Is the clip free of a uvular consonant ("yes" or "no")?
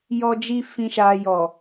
yes